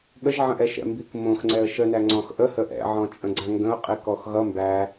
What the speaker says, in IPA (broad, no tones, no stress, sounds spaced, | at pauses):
ɠ ə ʒ ʕ ə̃ ʔ ɛ ʃ ɛ̰ m b i k m õ x ŋ͡ǀ ɛ ə̯ ʃ ə n æ ŋ͡ǀ ɔ̃ x ʔ ə h ə ʔ ɛ̰ ʕ ɔ̃ t͡ʃʼ ə̃ ɡ͡ǀ ã ŋ ɡ ə̃ ʊ̯ qʼ i k ɔ x ɣ ʌ m b æ